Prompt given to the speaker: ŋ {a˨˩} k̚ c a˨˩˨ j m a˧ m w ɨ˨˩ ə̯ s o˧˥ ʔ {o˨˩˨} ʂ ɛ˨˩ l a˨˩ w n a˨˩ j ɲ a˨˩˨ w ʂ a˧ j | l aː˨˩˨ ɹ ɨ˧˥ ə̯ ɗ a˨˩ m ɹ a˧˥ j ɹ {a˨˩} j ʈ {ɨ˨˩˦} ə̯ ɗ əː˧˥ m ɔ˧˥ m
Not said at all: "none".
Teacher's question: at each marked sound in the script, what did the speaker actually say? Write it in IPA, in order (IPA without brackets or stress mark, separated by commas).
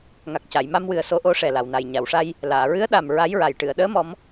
a˨˩, o˧˥, a˨˩, ɨ˨˩˨